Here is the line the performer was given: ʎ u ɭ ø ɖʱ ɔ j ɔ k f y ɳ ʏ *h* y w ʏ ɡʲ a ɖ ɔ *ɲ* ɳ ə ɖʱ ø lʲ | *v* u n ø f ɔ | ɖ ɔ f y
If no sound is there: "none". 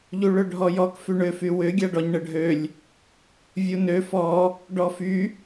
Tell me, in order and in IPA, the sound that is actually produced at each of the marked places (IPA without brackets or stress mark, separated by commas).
f, ɲ, vʲ